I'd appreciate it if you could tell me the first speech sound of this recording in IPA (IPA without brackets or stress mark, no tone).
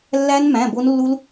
lː